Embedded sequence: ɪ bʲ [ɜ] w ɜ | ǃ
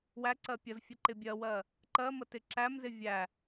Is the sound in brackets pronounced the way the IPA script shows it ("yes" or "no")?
yes